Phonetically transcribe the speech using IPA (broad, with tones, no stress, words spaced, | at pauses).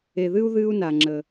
e˩ðɨ˧u̯ ðɨː˧u̯na˩ŋ͡ǁəː˩